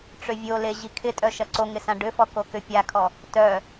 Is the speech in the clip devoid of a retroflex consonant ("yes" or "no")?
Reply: no